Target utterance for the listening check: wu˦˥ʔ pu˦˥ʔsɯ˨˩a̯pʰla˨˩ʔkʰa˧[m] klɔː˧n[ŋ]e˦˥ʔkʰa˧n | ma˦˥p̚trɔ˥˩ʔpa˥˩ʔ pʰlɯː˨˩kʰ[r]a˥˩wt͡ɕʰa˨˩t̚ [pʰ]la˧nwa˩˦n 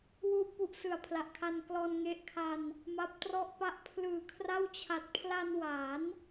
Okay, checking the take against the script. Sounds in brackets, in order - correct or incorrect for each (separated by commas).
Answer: incorrect, correct, correct, correct